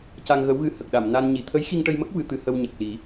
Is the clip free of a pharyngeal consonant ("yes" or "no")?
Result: yes